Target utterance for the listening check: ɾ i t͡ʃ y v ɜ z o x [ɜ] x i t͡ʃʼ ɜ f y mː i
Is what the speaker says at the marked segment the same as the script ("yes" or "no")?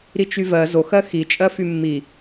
yes